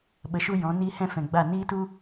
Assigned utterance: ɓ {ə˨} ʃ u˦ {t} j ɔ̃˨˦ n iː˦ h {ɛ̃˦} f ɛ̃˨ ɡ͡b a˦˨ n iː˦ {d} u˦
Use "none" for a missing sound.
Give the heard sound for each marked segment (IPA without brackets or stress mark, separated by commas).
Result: ə˧, none, ɛ̃˦, t